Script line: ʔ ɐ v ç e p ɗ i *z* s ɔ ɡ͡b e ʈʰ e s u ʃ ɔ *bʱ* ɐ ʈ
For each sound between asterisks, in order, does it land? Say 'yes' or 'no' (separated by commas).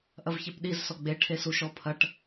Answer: yes, no